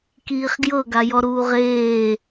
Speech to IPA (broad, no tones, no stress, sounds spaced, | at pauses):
k iː χ ɡ j ɤ ɡ a j ɔ ɾ uː ʁ eː